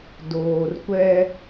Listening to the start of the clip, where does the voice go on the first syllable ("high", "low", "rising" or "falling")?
low